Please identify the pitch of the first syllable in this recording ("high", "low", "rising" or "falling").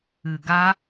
low